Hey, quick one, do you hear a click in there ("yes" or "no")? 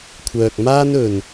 no